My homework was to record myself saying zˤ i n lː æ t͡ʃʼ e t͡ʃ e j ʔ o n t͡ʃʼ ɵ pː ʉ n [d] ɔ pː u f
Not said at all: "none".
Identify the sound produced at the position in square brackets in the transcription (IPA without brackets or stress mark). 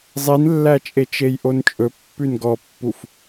ɡ